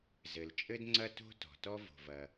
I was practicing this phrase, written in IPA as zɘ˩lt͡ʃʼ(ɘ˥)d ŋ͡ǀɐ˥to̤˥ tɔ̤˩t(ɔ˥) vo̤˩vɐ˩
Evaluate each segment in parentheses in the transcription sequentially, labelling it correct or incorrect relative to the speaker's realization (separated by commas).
correct, correct